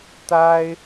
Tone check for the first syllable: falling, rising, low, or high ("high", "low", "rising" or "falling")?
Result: high